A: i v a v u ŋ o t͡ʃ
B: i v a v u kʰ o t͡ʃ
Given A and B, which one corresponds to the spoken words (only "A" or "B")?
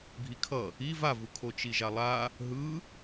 B